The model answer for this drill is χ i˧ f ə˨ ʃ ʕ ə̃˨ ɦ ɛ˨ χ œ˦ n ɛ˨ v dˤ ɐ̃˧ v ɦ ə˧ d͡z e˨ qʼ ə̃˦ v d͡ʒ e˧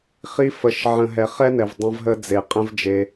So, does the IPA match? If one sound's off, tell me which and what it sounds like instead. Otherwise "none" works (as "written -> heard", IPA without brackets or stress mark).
œ˦ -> ɛ˦